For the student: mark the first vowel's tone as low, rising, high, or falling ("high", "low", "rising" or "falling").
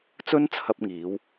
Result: high